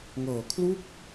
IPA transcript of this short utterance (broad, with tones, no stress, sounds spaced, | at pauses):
ŋ ɤː˨˩ kʰ l u˥˩ k̚